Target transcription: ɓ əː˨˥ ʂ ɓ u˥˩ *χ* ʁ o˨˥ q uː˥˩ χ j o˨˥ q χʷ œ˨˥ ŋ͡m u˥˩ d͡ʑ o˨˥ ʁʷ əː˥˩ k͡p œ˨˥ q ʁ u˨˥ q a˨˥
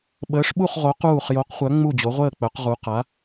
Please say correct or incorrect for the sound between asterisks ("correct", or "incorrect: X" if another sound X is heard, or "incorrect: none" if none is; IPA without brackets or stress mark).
correct